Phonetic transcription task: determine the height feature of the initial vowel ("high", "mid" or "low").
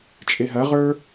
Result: mid